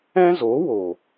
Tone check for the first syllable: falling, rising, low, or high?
high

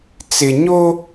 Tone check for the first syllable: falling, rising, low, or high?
low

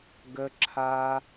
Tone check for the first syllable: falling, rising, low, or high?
high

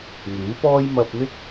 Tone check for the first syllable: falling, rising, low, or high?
rising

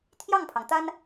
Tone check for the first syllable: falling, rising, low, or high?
falling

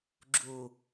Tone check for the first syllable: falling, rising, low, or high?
low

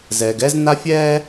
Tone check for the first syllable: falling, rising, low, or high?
low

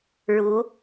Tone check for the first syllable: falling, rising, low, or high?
rising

